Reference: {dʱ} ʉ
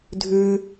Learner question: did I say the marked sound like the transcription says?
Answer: yes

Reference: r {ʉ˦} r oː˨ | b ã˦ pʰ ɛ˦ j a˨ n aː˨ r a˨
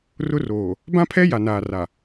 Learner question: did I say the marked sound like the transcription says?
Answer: no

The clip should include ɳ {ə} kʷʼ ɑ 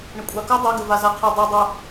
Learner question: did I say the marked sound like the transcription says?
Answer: yes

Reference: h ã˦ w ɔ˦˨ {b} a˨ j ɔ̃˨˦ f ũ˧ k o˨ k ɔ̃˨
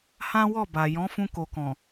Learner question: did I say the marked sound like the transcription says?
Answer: yes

